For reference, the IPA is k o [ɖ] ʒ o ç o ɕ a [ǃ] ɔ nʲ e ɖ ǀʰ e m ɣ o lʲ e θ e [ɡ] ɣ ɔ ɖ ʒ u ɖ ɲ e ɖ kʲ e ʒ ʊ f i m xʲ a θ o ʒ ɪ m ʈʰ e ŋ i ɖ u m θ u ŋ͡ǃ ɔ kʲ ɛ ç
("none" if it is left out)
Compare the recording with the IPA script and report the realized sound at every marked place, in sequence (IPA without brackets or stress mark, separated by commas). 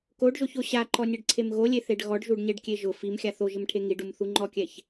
ɖ, ǃ, ɖ